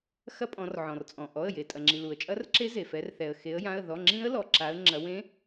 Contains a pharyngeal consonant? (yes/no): yes